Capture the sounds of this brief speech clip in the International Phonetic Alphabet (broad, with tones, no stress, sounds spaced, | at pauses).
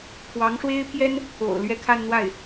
pʰ w ɑ˧˥ ŋ ʂ w e˥ ɪ̯ pʰ j ɛ˥ n | o̰˨˩ ʊ̯ l ɥ ɛ˥˧ kʰ a˥˧ n n̪ w a˥˩ ɪ̯